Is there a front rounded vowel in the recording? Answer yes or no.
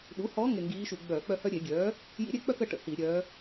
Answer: yes